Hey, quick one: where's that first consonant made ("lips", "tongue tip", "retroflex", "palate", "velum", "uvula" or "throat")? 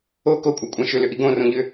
velum